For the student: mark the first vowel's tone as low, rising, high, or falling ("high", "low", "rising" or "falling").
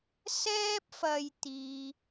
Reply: high